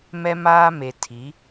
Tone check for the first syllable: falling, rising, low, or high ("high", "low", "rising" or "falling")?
high